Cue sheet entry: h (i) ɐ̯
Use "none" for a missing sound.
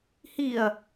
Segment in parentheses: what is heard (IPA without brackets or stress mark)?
i